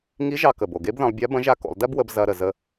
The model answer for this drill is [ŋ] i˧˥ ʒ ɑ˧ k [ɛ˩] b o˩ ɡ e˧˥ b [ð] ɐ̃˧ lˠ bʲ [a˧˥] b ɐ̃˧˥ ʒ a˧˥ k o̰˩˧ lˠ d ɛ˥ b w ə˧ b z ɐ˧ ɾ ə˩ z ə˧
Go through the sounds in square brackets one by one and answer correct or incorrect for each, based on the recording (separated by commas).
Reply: correct, incorrect, correct, correct